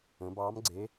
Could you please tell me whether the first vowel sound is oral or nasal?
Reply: nasal